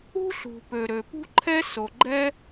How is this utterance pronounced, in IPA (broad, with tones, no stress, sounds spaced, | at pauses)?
ṳ˥ ɬ ṳ˩ p ø˩ ɾ ø˩ p ṳ˥ ǃʰ ɛ˥ s o˩ ɡ͡ǃ ɛ˥